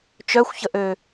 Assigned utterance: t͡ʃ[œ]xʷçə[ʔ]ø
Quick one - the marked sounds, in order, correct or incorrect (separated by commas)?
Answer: correct, correct